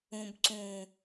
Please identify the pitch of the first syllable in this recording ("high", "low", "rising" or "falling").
low